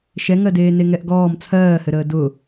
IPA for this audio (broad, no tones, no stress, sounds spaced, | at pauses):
ʃ ɛ ŋ ɜ d eː n e ŋ ɛ ʔ ɡ ɔː m t͡sʰ ɜː h ɘ ɾ əː d ʊ